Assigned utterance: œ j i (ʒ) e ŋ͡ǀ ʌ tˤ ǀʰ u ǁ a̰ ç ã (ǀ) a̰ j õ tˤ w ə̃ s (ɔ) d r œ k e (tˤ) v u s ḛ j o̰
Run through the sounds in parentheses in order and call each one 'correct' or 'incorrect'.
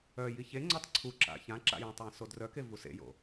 incorrect: ç, incorrect: ǁ, incorrect: o, incorrect: none

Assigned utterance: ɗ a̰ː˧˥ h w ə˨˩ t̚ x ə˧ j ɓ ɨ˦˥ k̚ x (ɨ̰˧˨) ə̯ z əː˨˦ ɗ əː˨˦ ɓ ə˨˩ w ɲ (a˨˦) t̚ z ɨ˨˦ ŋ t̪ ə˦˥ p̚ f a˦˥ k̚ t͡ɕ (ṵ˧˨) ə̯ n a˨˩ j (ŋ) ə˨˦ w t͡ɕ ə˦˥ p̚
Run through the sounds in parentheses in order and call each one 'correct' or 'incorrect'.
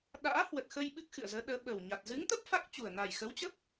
correct, incorrect: a˨˩, incorrect: u˨˩, incorrect: x

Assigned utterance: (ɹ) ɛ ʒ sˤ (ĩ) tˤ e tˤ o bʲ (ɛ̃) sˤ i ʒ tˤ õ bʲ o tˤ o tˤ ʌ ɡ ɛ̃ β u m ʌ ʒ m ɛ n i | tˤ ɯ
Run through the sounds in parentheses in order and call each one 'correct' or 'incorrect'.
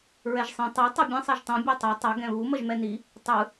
correct, correct, correct

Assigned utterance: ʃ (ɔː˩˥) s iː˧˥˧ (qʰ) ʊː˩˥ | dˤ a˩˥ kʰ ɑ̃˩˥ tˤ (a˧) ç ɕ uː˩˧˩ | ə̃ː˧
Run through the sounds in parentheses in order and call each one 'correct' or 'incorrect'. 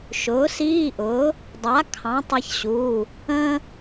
incorrect: ʊː˩˥, incorrect: ʔ, correct

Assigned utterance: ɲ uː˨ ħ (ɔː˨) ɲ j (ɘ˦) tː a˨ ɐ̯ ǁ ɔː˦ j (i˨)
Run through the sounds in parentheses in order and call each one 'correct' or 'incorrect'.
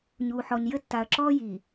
incorrect: ɔ˨, correct, correct

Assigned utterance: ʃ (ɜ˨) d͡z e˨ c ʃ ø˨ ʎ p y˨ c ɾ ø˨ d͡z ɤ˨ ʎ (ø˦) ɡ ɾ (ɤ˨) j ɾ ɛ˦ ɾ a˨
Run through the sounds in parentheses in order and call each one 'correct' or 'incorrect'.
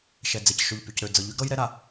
incorrect: ɛ˨, incorrect: y˦, incorrect: ɤ˦

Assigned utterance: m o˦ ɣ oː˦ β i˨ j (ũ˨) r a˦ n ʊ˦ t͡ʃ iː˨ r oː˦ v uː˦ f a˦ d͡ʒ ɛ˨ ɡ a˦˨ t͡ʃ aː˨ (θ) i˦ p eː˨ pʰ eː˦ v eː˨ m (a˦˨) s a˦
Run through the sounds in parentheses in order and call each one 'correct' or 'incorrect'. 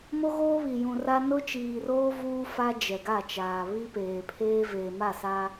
correct, incorrect: β, correct

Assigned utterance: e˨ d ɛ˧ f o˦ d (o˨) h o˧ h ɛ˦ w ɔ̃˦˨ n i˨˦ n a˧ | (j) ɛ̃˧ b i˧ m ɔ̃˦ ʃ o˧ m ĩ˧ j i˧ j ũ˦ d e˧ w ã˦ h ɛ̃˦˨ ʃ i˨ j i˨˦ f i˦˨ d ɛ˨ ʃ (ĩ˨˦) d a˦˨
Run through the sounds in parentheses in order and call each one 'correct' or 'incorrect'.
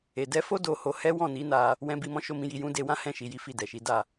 incorrect: o˧, incorrect: w, incorrect: i˨˦

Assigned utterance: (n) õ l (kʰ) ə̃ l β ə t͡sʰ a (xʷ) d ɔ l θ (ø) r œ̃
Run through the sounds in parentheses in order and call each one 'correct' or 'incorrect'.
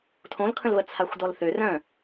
incorrect: tʰ, correct, correct, correct

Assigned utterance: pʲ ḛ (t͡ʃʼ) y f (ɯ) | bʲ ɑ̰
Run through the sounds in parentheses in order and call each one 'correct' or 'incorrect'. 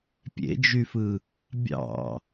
incorrect: d͡ʒ, correct

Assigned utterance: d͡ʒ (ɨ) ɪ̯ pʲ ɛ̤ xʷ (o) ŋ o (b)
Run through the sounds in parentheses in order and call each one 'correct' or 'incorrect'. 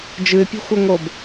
correct, correct, correct

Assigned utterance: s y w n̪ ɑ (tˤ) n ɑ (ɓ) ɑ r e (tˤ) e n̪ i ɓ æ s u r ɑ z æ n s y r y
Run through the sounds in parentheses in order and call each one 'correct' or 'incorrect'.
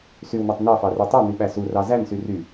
correct, incorrect: f, correct

